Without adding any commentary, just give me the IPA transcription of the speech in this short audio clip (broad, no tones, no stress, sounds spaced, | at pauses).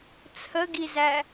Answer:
t͡sʰ ə ɡ i z æ